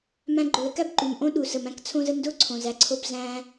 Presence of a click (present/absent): present